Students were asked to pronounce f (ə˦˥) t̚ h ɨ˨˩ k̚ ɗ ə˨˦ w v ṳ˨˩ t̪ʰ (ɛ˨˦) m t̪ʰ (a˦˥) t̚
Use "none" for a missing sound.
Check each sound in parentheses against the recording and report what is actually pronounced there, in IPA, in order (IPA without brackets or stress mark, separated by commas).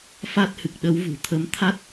a˦˥, ə˨˦, a˦˥